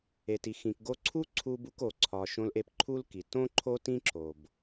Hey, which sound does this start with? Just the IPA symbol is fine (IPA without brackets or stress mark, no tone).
e